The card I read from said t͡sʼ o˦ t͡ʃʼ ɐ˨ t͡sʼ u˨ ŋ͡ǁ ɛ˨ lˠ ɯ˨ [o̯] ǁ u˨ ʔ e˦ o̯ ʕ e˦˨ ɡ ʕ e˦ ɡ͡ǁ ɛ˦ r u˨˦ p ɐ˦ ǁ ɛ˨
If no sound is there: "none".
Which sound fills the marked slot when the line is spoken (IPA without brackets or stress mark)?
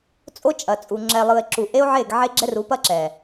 e̯